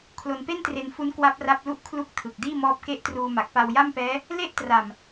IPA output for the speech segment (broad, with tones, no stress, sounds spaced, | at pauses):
kʰ l o˧ n p e˥˩ n t r e˧ n f u˦˥ n k w a˦˥ p̚ r a˦˥ p̚ l u˦˥ ʔ kʰ l u˦˥ k̚ tʰ ɯ˨˩ k̚ d iː˥˩ m ɔː˦˥ p̚ k e˥˩ ʔ t r uː˧ m a˨˩ k̚ p a˧ w j a˥˩ m p ɛː˦˥ | l e˥˩ ʔ t r a˨˩ m